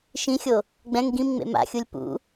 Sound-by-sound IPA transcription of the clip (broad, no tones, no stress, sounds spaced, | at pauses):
ʃ ĩ xʲ o | ɡ͡b ɛ̃ ŋ ɡ ĩ m ŋ͡m ḛ m a̰ xʲ u lʲ p ṵ